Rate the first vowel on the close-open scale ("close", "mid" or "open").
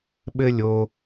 mid